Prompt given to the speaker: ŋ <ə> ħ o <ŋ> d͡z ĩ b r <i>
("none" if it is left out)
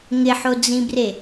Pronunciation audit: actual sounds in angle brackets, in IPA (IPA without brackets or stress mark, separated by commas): ɪ, none, e